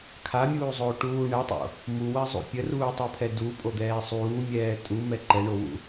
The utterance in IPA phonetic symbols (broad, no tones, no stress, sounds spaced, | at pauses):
kʰ a mʲ uː zˤ oː ʈ uː ɳ ɛ tˤ o̰ | m u w ɜ zˤ ṵ pʲ ə r uː tˤ u pʰ ɛ d u pʼ o d̪ ɛː sˤ uː mʲ ɛː tʼ u m ɛ ǃ ɛ ɳ o w ṵ